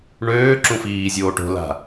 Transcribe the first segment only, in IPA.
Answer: ɳ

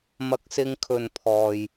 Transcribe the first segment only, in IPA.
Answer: m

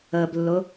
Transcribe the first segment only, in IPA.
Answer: ə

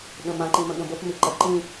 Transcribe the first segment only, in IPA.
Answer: ɠ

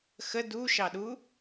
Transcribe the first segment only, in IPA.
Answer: x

